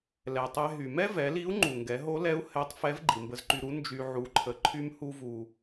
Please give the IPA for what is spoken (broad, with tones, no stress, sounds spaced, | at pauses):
l ɛ˩ tˤ ɛ˧ ɦ y˩ m ɛ˥ v ɛ˩˧ l i˧˥ u̯ ŋ͡ǃ u˩ ŋ ɡ ɛ˩˧ ɦ o˧˥ l ɛ˧˥ u̯ h ɛ˧˥ tˤ f ɛ˧˥ v ɡ͡ǃ i˩ m b ə˧ z ǃ y˧ ɾ u˧˥ n d͡ʒ y˧ ʕ u˧˥ ǃʰ ə˧˥ ǃʰ y˥ m h u˥ v u˧